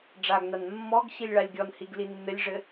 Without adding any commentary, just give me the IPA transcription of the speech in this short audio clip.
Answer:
ɖ͡ʐaɡnan mːɔɡ ɕilʲɭalʲɡʲɔnhiɡ linːɘlʲʐɘ

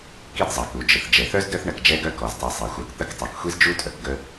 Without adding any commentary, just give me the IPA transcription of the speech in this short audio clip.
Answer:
ki˦dzˤɐ˩ku˩d͡ʒə˩θ d͡ʒɛ˩θœ˥z dœ˦θɳɐ˨k d͡ʒɛ˦ɡœ˦kɔ˩ztˤɛ˨ sˤi˩xʷœ˨kt̪ə˦k tˤœ˩kxʷi˥zd͡ʒu˥tʼœ˩k ɡə˦

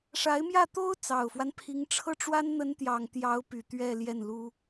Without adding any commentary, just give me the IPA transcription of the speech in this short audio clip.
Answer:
ʂa˧˥ɪ̯mjä˥˩t̪o˥ʊ̯ t͡sɑ˨˩ʊ̯fwa˦n pʰi˧˥ŋʈ͡ʂʰɤ˥ʈ͡ʂwa˥n n̪ə˧˥nt̪jɑ˨˩ŋ t̪jɑ˧˥ʊ̯py˨˩ t̪ɥɛ˥˧ljɛ˥˩nlu˥

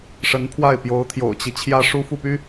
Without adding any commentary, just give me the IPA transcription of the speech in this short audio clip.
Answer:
ʂə˧˥npʰwa˥˩ɪ̯ pjo˧˥ʊ̯t̪ʰjo̰˨˩ʊ̯t͡ɕi˦ t͡ɕʰjä˥ʂu˥fu˥˩py˥

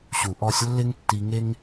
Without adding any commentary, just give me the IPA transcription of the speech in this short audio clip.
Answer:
ɕu˨ʔɔ˧sʲ lːɪ˦ŋ tːi˧ŋe˦ŋ

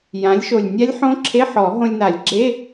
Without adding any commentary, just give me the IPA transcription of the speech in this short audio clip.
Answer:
jã˩˥lʲʃo˨˩lʲ nʲa˦˥lʲħõ˦˥ ǁʰe˧˥˧ħɔ˨˩˦ ɦõ˧lʲna˨˩˦lʲɡ͡ǁe˧˥˧

